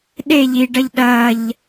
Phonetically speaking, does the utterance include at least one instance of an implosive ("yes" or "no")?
yes